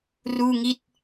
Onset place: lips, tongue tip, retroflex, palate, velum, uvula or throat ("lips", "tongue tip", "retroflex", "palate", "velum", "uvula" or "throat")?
tongue tip